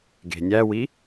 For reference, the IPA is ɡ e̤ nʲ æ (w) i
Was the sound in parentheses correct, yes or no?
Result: yes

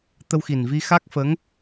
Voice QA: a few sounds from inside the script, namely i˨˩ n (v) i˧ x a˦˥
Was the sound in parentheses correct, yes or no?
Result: yes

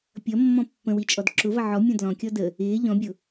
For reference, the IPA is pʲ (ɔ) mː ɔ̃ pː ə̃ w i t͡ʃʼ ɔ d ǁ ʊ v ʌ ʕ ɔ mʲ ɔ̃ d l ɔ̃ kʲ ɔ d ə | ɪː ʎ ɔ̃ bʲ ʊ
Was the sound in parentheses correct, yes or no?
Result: no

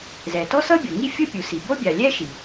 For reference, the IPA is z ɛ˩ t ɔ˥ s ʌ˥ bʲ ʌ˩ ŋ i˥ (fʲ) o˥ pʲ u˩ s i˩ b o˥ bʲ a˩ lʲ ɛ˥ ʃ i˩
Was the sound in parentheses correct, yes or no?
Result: yes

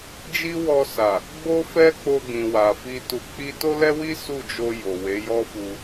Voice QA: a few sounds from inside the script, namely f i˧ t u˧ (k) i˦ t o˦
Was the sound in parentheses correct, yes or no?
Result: no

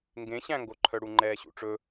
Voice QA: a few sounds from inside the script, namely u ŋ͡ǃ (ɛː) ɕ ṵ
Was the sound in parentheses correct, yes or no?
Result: yes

